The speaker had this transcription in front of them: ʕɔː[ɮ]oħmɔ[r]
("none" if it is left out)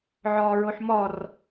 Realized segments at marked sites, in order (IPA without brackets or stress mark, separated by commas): ɹ, r